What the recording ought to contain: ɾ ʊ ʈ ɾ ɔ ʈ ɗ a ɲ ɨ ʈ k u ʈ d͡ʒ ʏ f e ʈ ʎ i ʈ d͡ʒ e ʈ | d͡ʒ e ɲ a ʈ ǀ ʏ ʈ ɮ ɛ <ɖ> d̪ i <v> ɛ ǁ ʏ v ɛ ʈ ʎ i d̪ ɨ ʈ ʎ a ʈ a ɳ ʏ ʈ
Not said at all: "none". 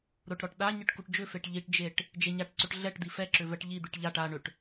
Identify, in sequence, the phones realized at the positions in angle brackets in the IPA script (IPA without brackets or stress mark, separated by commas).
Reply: ʈ, f